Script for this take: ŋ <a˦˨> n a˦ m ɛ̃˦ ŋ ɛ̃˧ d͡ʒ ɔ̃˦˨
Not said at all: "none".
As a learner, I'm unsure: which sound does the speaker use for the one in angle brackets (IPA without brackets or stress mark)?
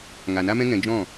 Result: a˨